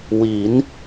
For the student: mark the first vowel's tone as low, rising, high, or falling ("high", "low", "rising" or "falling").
rising